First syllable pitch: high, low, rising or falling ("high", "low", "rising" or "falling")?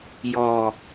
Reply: low